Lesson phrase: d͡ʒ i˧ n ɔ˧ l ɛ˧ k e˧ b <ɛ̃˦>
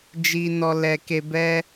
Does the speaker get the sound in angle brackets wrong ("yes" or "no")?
yes